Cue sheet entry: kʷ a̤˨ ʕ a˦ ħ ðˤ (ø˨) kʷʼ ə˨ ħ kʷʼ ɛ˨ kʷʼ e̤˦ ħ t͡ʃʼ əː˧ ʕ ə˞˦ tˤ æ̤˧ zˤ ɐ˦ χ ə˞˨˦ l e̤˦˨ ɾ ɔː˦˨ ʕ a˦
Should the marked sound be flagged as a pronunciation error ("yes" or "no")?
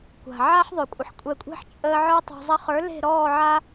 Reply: no